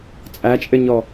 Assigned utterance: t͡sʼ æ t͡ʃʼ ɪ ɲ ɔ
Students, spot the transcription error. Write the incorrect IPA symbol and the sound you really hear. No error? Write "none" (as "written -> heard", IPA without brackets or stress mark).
none